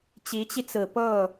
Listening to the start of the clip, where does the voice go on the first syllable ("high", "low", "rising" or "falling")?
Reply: rising